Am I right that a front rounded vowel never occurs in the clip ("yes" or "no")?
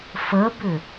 no